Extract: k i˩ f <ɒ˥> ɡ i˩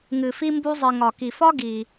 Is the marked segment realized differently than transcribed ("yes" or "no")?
no